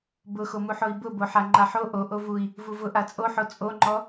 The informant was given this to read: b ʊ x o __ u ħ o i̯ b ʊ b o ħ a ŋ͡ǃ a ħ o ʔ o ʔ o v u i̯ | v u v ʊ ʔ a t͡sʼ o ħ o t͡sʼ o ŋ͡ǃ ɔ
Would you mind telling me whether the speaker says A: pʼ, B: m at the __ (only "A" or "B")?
B